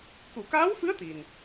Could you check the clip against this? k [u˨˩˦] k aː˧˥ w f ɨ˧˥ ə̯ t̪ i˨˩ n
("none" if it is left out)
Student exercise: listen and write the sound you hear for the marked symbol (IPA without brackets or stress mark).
u˨˩˨